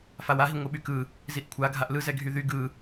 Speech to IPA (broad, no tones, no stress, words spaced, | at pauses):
fawaɦi ŋʷɯɓykɯ | ziʔkʷʰa ɡʱaʔlɯzɛ ɡʱyðy ɡɯ